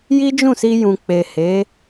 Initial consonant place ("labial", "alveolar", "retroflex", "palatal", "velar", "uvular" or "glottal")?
palatal